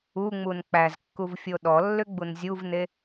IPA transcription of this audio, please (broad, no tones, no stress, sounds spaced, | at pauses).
u ŋ͡m u n k͡p æ z kː u v fʲ o ɗ ɔ lː ʏ ɡ͡b u n zʲ u v n e